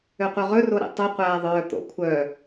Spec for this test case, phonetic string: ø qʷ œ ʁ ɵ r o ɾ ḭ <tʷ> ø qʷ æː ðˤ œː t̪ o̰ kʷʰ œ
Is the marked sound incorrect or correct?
incorrect